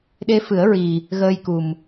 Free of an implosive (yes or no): no